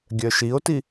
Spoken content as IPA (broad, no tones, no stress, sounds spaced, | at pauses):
ɡʲ œ ʃ i o̯ t i